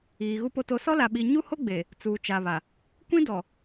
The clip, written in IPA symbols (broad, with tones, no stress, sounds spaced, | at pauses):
iː˨ ɣ u˨ p o˨ t o˨ s ɔ˦ l a˨ ɓ i˨ ɲ u˦ h o˦ ɡ͡b e˨ | t͡s uː˨ t͡ʃ a˨ β a˨ | kʷ ĩ˦ d ɔ˨